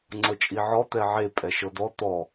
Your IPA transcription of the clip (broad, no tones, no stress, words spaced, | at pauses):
ŋ͡ǀɤt͡ʃʼiʕɔ t̪ɛʕe pʼɛʃɤd̪ɔ t̪ɔ